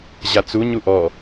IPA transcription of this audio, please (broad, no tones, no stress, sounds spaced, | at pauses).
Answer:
ʑ a t͡s u ɲ u ʔ ɔ